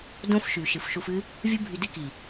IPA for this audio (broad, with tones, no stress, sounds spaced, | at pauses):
d õ˦ f ʃ y˨ ʃ ɨ˨ f ʃ u˧ f ɨ˦ | vʲ u˦ bʱ y˧ d ɨ˦ k i˨